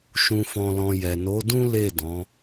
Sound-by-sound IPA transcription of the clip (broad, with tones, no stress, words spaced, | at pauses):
ʃũ˨fɔ̃˨lɔ̃˨ jɛ˨no˨˦dũ˦ le˦˨dɔ̃˨˦